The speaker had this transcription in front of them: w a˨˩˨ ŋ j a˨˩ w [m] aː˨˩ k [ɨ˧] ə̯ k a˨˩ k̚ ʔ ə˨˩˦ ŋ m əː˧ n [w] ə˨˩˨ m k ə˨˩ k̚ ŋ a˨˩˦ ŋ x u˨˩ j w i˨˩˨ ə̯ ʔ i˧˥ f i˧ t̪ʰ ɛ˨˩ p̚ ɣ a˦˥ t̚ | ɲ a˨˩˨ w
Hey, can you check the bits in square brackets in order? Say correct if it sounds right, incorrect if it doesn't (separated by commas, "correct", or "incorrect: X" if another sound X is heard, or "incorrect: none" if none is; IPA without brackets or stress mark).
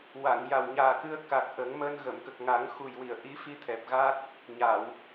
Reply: incorrect: ɲ, correct, incorrect: ɣ